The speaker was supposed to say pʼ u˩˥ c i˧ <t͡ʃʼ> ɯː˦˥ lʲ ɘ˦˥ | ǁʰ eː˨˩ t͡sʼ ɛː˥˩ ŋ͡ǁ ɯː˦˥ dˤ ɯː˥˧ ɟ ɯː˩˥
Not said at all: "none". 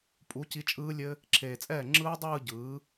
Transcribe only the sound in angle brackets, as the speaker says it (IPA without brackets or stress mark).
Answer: t͡ʃʼ